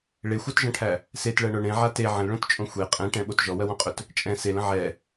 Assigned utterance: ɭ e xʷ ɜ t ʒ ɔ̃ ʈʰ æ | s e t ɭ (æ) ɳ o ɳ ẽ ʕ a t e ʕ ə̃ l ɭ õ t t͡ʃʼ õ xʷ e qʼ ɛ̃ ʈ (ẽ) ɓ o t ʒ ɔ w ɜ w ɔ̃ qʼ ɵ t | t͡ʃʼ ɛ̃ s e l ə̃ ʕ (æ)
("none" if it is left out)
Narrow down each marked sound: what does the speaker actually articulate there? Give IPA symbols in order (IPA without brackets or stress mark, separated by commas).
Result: ɜ, ɛ̃, ɛ